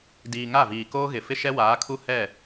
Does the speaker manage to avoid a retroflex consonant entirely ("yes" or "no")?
yes